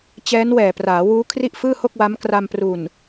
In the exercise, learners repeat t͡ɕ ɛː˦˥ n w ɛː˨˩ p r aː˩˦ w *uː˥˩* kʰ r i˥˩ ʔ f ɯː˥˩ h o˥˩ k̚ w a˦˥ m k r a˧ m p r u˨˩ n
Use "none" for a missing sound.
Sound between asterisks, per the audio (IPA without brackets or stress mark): uː˦˥